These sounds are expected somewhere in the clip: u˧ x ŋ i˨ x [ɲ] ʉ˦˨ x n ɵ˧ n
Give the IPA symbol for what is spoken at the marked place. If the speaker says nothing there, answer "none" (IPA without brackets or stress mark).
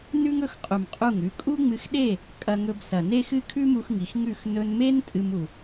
ŋ